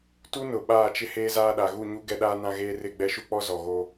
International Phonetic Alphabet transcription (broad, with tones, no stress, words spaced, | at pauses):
tu˦nʊ˨ ɓaː˦˨t͡ʃɪ˦ heː˦zaː˦ɗa˨ ɣu˦˨ɲu˦ ɡɛ˦ɗaː˦nã˦ɣeː˦ rɪ˦˨ɡ͡bɛ˦ʃu˦k͡pɔ˦ zɔ˨ɣo˦